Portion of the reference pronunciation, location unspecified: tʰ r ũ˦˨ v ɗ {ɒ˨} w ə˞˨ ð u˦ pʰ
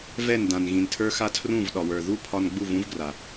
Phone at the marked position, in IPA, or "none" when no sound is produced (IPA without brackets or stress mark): ɒ˨